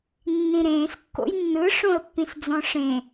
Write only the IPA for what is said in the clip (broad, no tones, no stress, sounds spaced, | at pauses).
nː ĩ ɾ ẽː s kː o̰ j nː ɯ ʂ õ ə̯ pː ĩ s d͡z ɔ̃ ʂ ẽ